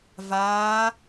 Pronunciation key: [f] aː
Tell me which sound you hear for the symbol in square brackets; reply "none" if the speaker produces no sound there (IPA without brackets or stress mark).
v